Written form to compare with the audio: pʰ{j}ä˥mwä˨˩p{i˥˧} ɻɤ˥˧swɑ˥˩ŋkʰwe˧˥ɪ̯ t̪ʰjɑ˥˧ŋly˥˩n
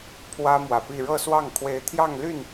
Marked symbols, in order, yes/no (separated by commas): no, yes